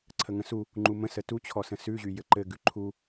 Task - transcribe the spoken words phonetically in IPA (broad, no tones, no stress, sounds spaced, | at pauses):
ǀʰ ə ŋ ə̃ s u | ŋ͡ǃ u m ə̃ s ə t u t͡ɕʰ ɔ s ə̃ s ʉ ʑ y j ɘ ǃ ɘ ɡ ʉ ǃʰ u